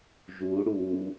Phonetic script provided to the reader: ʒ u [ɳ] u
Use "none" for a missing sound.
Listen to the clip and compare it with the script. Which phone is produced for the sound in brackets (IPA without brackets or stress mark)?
ɽ